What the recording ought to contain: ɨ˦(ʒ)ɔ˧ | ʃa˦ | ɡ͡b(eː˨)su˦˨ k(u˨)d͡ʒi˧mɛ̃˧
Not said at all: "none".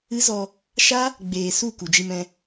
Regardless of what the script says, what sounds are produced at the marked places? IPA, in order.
z, eː˨, u˨

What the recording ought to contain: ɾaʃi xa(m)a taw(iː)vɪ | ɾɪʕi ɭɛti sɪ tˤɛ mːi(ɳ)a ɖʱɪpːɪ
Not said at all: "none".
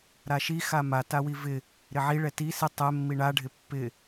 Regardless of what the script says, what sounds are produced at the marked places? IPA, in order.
m, i, ɳ

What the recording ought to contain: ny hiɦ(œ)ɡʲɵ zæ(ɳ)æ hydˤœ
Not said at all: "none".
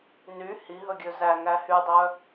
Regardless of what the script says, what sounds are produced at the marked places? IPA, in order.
ɵ, ŋ

